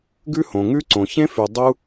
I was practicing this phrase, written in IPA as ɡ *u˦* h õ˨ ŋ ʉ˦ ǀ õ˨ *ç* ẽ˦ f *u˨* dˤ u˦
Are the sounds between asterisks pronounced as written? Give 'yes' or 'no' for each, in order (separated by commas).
no, yes, no